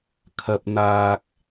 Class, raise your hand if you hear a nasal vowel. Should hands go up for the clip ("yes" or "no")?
no